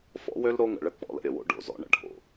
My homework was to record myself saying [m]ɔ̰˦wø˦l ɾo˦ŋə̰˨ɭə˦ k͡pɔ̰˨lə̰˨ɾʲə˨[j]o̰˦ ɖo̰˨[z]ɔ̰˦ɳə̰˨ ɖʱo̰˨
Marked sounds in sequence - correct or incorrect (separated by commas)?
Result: incorrect, incorrect, correct